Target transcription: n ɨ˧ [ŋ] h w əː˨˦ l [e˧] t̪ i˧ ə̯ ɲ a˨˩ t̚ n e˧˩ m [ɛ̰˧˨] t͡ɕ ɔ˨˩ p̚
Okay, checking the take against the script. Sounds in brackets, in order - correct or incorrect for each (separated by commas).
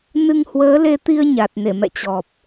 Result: correct, correct, correct